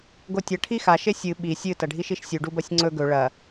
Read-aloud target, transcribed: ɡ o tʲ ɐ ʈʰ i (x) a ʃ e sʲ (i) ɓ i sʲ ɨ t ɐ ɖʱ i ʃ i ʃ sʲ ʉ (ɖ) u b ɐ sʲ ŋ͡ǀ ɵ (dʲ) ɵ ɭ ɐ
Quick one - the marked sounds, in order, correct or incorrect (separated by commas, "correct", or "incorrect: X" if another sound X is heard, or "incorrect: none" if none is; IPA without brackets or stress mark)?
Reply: correct, incorrect: ɨ, correct, incorrect: ɡ